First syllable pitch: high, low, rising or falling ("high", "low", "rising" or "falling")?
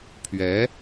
rising